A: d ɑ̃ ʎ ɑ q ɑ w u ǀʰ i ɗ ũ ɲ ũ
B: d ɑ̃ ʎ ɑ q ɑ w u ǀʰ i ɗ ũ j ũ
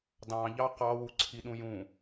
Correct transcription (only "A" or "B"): B